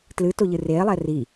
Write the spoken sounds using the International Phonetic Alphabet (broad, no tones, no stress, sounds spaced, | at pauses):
t l ɨ t o ʎ ɨ r eː lˠ ɛː r i